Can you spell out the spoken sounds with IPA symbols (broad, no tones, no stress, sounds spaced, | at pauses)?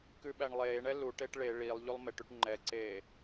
k ʉ ɓ æ ɳ lˠ eː ɳ ɛ l u ʈ e ʈ ɭ e ɭ i lˠ ʎ u lˠ m e ʈ y ʈ ŋ͡ǃ ɛ ǀ eː